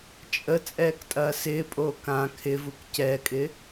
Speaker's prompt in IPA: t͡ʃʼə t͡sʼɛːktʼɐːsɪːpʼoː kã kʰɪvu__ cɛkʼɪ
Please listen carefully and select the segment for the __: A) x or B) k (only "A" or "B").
B